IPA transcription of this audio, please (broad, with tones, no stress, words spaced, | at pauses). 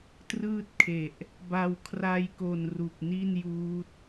trɯː˥˩t̚kʰe˨˩ʔ | ba˧w kʰra˧jko˨˩n ru˨˩k̚ni˥˩njuː˦˥t̚